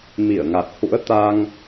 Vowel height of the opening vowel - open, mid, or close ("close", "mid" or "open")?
close